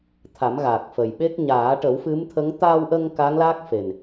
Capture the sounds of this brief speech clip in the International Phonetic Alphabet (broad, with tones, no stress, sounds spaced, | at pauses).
t̪ʰ a˨˩˦ m ɣ a˨˩ k̚ f ə˨˩ j ɓ e˦˥ k̚ ɲ aː˨˩˦ ʈ ə˨˩˦ w f ɨ˧˥ m t̪ʰ ə˧˥ ŋ t̪ aː˧ w ʔ ə˧ ŋ k a˧˥ ŋ l a˦˥ k̚ f e˨˩ n